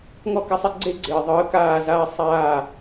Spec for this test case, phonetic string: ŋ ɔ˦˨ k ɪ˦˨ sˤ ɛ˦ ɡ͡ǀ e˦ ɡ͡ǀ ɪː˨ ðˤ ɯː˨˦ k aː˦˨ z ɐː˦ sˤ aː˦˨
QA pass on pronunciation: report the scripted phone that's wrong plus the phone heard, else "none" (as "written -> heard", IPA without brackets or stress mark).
ɐː˦ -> aː˦